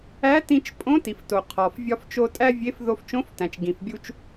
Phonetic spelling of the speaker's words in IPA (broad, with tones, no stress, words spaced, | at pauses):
æ˧˥tĩ˧t͡ʃ pʼõ˧˥ti˩fto˩ qʰɒ˩f vʲɒ˧ft͡ʃo˧ tʼæ˥vʲe˧˥f ðo˧ft͡ʃõ˧˥ftæ̃˩t͡ʃ ɡĩ˩fbʲu˧t͡ʃ